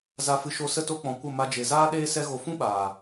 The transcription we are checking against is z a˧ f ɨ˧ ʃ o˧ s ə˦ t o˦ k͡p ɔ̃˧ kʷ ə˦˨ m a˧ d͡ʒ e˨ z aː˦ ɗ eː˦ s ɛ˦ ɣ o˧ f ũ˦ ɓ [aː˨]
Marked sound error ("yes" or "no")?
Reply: no